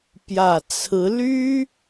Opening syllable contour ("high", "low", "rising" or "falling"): low